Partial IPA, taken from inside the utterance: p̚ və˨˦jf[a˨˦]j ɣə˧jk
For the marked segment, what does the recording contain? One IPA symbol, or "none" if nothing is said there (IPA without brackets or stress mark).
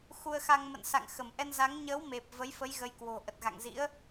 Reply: ə˨˦